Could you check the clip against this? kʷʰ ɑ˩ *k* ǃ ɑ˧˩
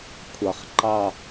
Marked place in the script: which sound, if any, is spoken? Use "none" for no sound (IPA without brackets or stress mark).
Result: χ